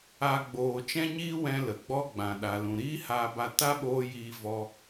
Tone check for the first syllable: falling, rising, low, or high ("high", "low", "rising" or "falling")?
high